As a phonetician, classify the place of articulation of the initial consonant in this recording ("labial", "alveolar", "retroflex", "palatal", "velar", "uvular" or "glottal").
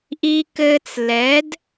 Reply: glottal